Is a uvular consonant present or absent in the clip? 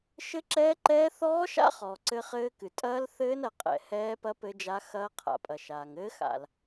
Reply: present